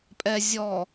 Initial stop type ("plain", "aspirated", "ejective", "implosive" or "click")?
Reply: ejective